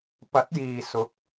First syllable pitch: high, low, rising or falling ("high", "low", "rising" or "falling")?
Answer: rising